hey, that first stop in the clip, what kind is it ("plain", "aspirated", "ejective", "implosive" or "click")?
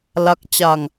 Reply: plain